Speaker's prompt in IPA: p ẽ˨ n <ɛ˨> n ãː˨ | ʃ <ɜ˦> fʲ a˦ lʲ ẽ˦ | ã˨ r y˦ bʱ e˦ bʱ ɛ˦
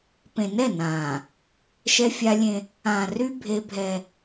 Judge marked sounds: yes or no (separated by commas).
no, no